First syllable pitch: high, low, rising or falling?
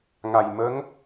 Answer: low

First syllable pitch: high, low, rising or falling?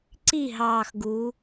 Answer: falling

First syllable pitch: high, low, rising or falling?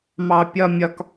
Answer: low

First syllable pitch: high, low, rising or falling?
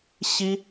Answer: high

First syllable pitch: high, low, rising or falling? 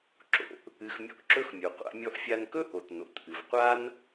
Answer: low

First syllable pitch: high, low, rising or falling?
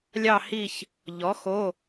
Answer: falling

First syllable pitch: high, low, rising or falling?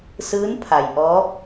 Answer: rising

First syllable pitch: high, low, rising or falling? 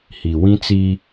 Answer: low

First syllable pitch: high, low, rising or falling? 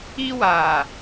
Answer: high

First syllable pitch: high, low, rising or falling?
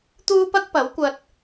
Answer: high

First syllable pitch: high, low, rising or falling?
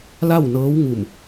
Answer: falling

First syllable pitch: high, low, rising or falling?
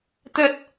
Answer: low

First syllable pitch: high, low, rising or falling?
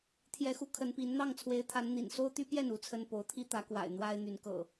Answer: rising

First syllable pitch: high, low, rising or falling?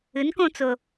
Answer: rising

